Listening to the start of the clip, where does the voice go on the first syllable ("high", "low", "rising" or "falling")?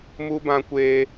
high